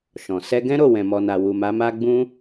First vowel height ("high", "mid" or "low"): mid